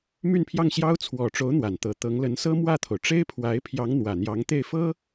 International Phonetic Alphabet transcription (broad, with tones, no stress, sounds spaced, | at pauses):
m y˥˧ n pʰ j ɑ˥˩ ŋ ɕ j ɑ˥ ʊ̯ t͡sʰ w ɔ˨˩ ʈ͡ʂ o˧˥ ʊ̯ n̪ w a˨˩ n t̪ ɤ˧˥ t̪ ɤ˧˥ ŋ l ə˧˥ n s ɤ˥ m w ä˥˩ t̪ʰ o˩ ʊ̯ ʈ͡ʂ e˥ ɪ̯ pʰ w a˧˥ ɪ̯ pʰ j ɑ˧˥ ŋ n̪ w ä˨˩ n̪ j ɑ˧˥ ŋ t̪ e˥˩ ɪ̯ f ɤ˥